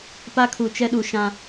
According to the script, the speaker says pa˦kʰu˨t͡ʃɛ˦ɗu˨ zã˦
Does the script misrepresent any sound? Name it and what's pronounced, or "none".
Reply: z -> ʃ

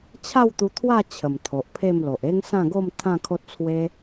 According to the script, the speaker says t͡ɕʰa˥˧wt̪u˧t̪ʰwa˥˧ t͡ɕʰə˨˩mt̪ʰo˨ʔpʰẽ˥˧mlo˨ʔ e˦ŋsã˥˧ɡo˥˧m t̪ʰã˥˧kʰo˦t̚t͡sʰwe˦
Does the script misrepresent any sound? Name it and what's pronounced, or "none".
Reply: ẽ˥˧ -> e˥˧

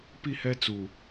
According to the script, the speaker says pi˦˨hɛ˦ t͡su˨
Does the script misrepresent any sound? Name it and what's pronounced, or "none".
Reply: none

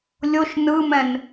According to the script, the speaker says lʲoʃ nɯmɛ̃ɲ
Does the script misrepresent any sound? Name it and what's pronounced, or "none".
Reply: ɲ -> n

